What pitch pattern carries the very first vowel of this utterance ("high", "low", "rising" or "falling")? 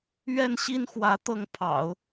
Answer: falling